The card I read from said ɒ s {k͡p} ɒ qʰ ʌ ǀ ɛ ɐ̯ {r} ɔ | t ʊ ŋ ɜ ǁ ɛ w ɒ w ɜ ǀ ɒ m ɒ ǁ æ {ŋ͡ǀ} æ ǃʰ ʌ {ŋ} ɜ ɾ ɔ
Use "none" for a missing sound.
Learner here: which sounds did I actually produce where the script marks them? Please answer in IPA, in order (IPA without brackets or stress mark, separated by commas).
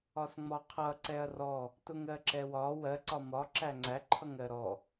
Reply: ŋ͡m, r, ŋ͡ǀ, ŋ